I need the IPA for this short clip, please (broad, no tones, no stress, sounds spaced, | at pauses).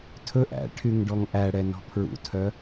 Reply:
tʰ ɵ ʔ æ̰ ʈʰ y ŋ ɖ ɔ ŋ ʔ æ ɽ ɛ n ɔ̤ pʰ ɹ ṵ tʰ œ